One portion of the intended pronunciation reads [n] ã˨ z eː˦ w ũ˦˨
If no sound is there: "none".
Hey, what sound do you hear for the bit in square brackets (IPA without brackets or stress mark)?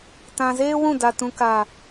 t